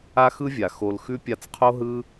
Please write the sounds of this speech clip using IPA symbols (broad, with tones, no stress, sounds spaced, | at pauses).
a˦ x ɯ˦ vʲ a˨ x o˨ l x ʉ˧ pʲ a˧ t͡s qʰ o˦ ɦ ɯ˦